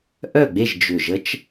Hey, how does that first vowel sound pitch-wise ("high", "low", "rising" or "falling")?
falling